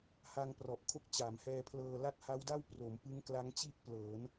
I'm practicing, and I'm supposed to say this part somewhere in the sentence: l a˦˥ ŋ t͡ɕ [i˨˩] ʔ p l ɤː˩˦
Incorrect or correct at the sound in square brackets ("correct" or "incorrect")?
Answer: incorrect